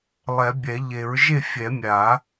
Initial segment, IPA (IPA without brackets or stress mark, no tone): lˠ